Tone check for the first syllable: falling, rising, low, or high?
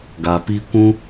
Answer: low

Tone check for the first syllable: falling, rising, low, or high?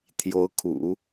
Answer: rising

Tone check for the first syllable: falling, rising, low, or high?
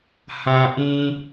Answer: low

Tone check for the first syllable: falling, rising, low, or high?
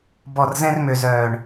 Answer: low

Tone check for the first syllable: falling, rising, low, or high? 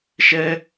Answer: high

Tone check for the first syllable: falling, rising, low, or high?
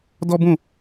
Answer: high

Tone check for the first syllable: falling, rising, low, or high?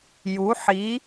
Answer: rising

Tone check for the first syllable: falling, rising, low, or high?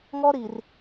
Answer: high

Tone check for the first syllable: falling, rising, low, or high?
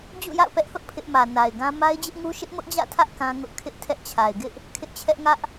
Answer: falling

